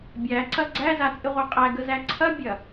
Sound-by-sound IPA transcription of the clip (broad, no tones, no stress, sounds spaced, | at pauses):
bʲ æ ǀ ɐ ɡ͡ǀ æ z a t͡sʼ ɪ ʁʷ æ qʼ æ ɡ ə z æ ǀʰ ɐ bʲ ɐ